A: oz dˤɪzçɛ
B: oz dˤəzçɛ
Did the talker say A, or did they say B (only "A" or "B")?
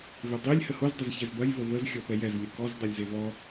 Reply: B